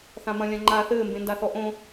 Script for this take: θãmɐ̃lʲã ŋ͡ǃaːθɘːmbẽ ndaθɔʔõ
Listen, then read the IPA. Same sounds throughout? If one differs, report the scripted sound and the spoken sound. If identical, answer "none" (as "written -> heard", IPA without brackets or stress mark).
none